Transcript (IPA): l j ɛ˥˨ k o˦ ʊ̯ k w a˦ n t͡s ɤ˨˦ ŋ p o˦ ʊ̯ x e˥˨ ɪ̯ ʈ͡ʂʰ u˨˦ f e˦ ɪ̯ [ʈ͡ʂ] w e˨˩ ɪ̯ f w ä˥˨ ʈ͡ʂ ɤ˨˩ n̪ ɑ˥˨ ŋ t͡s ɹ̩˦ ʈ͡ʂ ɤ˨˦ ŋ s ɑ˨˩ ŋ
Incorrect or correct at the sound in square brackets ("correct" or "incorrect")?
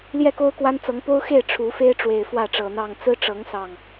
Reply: correct